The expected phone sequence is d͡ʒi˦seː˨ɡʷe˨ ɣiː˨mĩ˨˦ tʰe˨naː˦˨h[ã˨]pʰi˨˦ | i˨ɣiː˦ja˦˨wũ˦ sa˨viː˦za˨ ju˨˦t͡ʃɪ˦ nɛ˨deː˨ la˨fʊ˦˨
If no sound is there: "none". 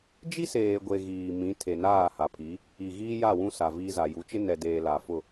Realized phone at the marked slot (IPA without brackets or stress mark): a˨